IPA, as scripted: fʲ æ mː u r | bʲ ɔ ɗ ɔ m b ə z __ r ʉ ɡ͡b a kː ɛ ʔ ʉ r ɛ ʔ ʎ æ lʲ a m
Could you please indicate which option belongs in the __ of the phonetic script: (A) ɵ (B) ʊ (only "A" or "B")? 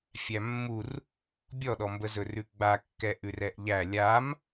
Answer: A